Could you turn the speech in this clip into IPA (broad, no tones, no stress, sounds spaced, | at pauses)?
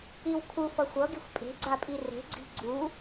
i w kʰ u f ʌ xʷ ʌ ɡ i xʷ pʼ e̤ ɡ͡ǀ a pʼ i r e̤ ɡ͡ǀ i̤ ɡ͡ǀ u